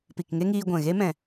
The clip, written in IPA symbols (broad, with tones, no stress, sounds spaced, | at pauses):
p i˨ k ŋ e˦ ŋ iː˧ ɡʷ ɛ̃˨ ɣ e˦ m ɛ̃˨